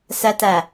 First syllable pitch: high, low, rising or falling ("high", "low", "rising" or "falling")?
low